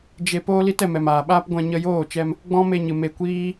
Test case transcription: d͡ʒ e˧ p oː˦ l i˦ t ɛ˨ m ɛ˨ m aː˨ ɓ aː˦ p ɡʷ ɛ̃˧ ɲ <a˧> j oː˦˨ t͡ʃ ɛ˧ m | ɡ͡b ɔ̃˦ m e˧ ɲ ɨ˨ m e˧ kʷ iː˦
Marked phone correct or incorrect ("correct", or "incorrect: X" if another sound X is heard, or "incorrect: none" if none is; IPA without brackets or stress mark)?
incorrect: ə˧